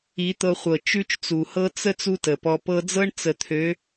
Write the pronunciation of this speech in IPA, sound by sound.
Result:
i˨˦ t̪ ɤ˧ χʷ ɤ˨ t͡ʃ ʉ˦ t͡ʃ t͡s u˨ h ɤ˦ t͡s ə˦ t͡s u˦ t ə˨ p ɔ˧ p ɤ˧ d͡z ɤ˦ ɳ t͡s ə˨ t̪ʰ ø˨˦

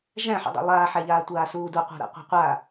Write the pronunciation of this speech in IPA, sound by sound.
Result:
ʒ æ̃ ħ ṵ dˤ ṵ lˠ aː ħ æ ʎ aː tʷ aː s uː d u qʷ æ̤ ɾ a̰ qʷ æ̤ qʷ a

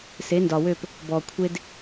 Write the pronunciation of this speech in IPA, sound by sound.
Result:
s e˨˦ n d ɒ˨ w ø˦˨ p | b ɔ˨ kʷʰ e˦ d

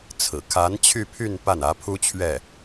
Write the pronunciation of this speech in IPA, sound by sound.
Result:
t͡sʰ ɹ̩˨˩ kʰ a˧˥ n t͡ɕʰ y˥˧ pʰ y˥˧ n p a˥˩ n ä˧˥ pʰ u˥ t͡ɕʰ ɥ ɛ˥˩

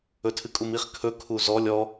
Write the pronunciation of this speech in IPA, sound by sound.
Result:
ɵ tʰ ɨ kʼ u m i χ kʰ ɵ kʰ u z ɔ lʲ ɔ

